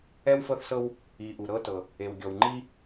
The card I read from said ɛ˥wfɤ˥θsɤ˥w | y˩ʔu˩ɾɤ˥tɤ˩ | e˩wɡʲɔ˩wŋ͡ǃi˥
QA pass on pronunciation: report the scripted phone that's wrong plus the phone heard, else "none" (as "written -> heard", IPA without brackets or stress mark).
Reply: y˩ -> i˩